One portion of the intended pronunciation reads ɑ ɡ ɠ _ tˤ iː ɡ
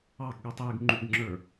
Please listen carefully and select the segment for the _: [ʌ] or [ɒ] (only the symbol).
ʌ